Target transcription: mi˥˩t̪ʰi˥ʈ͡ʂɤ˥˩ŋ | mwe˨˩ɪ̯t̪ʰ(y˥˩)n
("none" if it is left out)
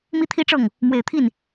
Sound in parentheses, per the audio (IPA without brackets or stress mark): i˥˩